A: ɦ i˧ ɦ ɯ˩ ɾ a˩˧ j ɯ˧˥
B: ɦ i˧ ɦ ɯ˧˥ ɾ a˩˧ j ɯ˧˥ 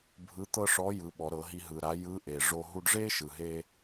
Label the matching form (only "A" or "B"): A